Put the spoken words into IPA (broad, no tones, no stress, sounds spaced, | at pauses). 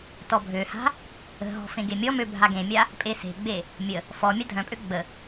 t ɔ bʱ ø h a̤ | ə̤ ɦ ɔ̤ f ẽ ɡ e mʲ ɔ m ø bʱ a ɡ ẽ mʲ a | pʼ e s e̤ ɡ͡b e | mʲ ə | f ɔ mʲ a dʱ œ̃ pʼ ø ɡ͡b ə